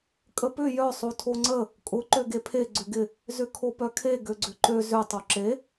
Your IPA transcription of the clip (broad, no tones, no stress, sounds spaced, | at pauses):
kʼ ə p ʏ j œ sˤ o tʰ o ŋ͡ǀ ə | kʼ ʊ ǃ ø ɡ e pʰ e ɡ͡ǀ ʏ ɡ ɪ | z ʏ kʰ o p œ kʰ e ɡ ø ɡ͡ǀ ʏ ǃ ø z ʏ tˤ o ǁ e